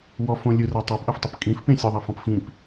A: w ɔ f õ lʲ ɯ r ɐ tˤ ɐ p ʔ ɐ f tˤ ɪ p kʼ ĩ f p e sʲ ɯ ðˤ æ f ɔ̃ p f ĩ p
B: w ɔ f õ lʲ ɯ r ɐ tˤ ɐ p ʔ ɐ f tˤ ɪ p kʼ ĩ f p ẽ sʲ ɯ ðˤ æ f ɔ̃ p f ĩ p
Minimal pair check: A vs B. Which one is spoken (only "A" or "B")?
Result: B